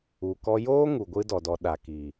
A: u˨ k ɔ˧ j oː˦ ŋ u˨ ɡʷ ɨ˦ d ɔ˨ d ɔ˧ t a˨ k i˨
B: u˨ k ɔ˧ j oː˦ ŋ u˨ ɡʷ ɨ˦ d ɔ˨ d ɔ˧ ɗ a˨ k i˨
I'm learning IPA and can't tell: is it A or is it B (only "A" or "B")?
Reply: B